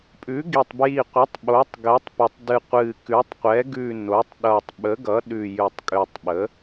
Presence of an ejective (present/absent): present